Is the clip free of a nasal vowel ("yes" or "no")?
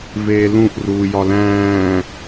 no